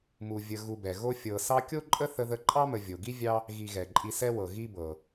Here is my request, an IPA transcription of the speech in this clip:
m u˨ vʲ ə˨ ɣ u˨ b ɛ˩ ɣ o˦ fʲ ɤ˨ s ɑ˥ kʲ o˥ ǃʼ ə˥ θ ə˦ ð ə˦ ǃʼ ɑ˥ m ə˨ vʲ o˩ ɡ i˦ vʲ ɑ˦ | ɣ i˨ ɣ ɛ˩ ǃʼ i˨ s ɛ˦ w ɤ˩ ɣ i˦ b ɤ˩

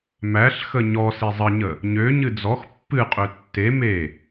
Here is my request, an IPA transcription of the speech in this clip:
m æ ɬ x ə ɲ ɔ s i zˤ ə ɲ ə | ɲ ø ɲ ɨ d͡z ɔ x pː ɨ qʼ ø tː e m e

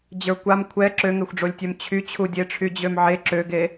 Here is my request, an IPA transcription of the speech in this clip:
d͡ʑ ə˞ kʷ a m kʷʰ ɛ ǁ ø ŋ e xʷ ɖ͡ʐ o lʲ tʲ ø m t͡ɕʰ y t͡ɕʰ u dʲ e ʈ͡ʂʰ y d͡ʑ ø m ʕ e ǁ ø ɡ e

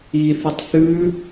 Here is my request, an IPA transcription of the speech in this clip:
i θ ɨ tˤ θ ʉ

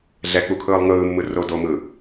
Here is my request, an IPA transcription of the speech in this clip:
ɮ ɛ k͡p u kʰ ɯː lˠ ŋ ɯː mː ɯ r o d o m ɯ

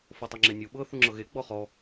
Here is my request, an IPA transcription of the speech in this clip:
f o tˤ i ŋ͡ǁ e nʲ u ɓ ɤ θ u ŋ͡ǁ ɤ ɣ e ɡ͡b ɔ χ ɔ

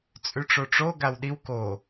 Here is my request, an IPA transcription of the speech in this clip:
t͡sʼ ʉ ʈ͡ʂ o ʈ͡ʂ o ɡ a w ɗ i w k o

